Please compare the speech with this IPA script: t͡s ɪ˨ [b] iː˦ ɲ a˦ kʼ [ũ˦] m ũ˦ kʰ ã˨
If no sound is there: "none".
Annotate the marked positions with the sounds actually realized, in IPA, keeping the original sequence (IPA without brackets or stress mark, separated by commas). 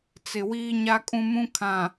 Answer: w, ũ˦